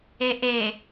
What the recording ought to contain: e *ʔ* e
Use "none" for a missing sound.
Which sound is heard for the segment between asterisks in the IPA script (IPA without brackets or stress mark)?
ʔ